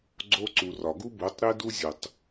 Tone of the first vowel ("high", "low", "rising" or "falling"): high